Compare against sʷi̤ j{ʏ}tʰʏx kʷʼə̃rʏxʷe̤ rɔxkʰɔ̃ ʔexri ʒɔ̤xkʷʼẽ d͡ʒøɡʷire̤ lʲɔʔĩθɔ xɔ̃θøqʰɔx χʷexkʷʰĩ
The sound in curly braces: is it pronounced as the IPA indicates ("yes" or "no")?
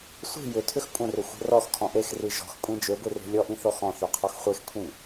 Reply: yes